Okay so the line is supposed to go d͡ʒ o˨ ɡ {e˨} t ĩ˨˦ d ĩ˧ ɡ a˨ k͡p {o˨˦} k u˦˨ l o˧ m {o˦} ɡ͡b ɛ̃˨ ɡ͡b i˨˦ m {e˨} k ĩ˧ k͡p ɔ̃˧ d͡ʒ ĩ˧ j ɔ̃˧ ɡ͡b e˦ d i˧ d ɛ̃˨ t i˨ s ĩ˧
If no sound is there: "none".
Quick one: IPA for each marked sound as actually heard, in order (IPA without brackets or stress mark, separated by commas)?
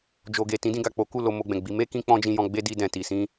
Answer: e˨, o˨˦, o˧, e˦